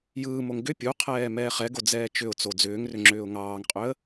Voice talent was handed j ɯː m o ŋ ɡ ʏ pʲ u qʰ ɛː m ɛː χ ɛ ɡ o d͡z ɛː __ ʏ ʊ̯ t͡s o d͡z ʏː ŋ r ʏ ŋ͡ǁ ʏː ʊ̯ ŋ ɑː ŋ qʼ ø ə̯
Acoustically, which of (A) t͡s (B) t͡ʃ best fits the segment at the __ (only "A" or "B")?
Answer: B